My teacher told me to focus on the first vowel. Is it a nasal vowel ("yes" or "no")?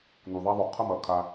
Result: no